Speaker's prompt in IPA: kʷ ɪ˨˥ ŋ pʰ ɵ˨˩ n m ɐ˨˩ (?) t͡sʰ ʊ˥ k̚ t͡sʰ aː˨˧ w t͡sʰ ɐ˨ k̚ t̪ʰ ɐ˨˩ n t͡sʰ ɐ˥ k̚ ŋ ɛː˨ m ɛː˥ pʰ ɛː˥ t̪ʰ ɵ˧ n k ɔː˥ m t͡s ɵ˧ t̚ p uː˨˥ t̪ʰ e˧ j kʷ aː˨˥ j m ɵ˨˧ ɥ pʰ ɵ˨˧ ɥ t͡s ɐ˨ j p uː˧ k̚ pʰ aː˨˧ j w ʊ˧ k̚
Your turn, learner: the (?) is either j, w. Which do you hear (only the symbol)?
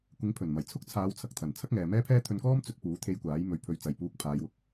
j